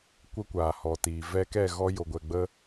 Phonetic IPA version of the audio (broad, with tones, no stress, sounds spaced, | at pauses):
kʷ ə˦ kʷ aː˨ h ɔ˨ t iː˨ v ɛ˧ k ɛ˦˨ ɣ ɔ˧ j o˨ ɡʷ ɛ˨ ɡ͡b ə˦